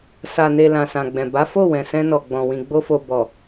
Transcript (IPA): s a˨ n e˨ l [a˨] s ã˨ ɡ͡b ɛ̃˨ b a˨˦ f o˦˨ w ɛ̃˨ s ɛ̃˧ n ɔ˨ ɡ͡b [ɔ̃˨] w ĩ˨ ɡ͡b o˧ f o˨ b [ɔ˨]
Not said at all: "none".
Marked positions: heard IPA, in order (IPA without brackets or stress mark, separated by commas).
ã˨, ɔ̃˨, ɔ˨